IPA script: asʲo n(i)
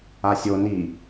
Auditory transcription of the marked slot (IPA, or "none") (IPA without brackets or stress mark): i